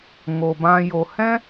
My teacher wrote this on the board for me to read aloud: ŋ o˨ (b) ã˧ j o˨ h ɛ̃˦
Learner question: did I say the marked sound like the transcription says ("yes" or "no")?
yes